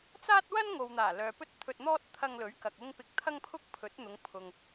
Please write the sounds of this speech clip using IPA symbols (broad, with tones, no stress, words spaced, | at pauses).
t͡saː˥t̚wɐ˥n ŋo˨wn̪aː˨˩ lœː˨ pɵ˥t̚t̪ʰɵ˧t̚n̪ɔː˥t̚ t̪ʰɐ˧ŋlɵ˨˥ɥkɐ˨k̚ ʊ˧ŋ pɪ˧k̚t̪ʰɐ˥ŋpʰʊ˥k̚pʰɵ˨˥t̚ n̪ʊ˨˧ŋ pʰʊ˨ŋ